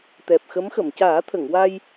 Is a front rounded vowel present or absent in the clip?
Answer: absent